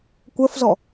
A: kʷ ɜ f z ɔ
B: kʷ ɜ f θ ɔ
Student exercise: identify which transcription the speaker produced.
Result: A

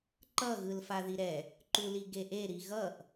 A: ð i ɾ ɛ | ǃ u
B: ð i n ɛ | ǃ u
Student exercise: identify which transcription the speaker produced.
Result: A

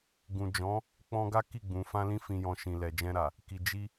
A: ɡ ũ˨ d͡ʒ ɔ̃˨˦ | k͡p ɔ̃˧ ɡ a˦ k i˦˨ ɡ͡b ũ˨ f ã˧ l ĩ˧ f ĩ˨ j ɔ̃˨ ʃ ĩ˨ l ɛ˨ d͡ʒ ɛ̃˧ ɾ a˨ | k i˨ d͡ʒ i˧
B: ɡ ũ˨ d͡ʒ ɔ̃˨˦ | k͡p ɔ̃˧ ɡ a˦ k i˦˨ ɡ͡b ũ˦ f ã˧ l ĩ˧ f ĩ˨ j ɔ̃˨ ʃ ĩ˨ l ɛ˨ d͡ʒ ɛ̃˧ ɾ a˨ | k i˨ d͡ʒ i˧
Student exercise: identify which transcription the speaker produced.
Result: A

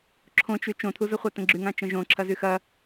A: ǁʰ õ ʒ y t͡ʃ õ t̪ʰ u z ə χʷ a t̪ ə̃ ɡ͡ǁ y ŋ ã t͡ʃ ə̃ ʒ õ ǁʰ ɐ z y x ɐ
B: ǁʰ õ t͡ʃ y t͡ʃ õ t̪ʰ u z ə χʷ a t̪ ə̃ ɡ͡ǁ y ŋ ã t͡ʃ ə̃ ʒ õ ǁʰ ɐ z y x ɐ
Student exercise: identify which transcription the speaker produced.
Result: B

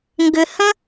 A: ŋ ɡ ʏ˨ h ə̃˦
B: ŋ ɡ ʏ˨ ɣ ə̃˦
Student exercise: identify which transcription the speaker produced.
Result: A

